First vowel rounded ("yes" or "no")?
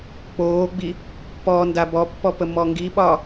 yes